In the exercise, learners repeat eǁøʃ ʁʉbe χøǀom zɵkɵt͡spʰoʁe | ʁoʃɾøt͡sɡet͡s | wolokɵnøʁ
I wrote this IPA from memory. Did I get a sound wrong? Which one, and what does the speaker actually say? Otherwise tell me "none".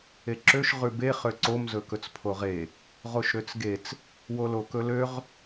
n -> l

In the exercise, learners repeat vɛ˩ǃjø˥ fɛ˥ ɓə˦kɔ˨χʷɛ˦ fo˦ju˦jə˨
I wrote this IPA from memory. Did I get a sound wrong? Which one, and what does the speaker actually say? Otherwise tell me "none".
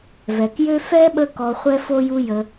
ǃ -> k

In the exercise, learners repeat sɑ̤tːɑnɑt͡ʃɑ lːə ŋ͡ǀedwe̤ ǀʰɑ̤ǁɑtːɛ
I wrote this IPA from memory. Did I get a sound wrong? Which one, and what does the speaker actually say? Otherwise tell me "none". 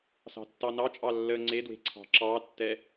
t͡ʃ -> t͡ʃʼ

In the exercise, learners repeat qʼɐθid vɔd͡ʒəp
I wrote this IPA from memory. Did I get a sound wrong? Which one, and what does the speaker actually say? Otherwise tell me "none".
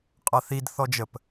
v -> θ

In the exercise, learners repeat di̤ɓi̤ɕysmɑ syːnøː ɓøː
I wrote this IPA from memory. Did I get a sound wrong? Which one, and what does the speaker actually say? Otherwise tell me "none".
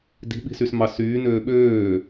ɕ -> s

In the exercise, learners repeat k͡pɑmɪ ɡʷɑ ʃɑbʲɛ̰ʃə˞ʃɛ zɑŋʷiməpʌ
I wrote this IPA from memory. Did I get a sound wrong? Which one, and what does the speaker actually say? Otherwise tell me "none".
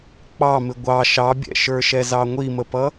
none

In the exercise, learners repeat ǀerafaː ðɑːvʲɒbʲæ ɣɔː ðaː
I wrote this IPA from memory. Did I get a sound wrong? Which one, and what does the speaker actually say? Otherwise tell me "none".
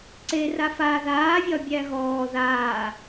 ɑː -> aː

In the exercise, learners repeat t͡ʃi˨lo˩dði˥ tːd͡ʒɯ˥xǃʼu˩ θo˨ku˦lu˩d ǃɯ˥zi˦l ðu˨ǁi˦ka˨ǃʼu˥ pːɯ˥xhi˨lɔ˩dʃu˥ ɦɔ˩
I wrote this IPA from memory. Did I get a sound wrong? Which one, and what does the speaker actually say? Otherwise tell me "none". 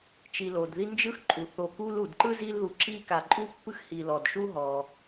tː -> n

